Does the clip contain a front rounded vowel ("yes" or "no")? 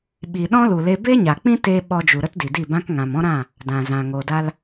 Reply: no